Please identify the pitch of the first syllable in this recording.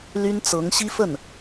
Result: high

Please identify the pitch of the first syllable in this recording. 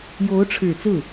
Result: rising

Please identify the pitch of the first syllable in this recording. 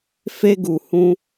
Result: high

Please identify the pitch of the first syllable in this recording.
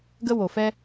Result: high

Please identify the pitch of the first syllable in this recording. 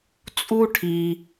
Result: high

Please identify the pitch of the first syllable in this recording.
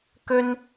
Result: high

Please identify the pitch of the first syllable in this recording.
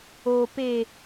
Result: low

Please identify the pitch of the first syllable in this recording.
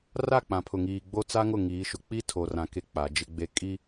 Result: falling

